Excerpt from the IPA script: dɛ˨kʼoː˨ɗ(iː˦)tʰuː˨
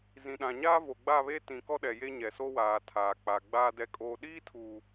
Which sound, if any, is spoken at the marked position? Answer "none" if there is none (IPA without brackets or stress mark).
iː˦